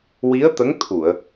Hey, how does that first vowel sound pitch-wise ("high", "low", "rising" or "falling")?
rising